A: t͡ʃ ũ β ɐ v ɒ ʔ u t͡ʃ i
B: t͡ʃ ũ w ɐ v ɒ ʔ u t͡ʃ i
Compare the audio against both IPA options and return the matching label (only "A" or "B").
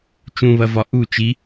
A